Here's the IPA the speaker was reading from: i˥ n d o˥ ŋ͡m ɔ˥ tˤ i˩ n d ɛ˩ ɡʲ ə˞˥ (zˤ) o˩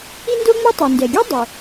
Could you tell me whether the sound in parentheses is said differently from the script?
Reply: yes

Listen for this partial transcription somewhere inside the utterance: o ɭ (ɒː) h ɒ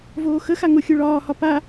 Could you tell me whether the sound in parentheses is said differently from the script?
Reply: no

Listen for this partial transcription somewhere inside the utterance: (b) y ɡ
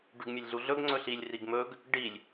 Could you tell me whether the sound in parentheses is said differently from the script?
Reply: yes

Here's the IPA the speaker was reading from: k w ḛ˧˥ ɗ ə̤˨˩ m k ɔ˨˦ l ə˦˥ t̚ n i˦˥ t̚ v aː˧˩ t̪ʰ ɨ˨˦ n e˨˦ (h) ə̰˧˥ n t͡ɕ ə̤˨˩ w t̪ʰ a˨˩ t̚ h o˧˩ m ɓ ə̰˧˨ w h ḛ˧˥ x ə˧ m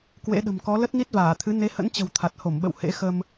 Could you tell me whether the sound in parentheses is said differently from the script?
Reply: no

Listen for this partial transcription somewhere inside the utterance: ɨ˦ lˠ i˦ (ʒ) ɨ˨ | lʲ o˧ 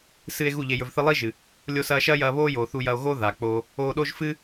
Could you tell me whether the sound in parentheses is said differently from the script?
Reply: no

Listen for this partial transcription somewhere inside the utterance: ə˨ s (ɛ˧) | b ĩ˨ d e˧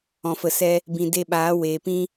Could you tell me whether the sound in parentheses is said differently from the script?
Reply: no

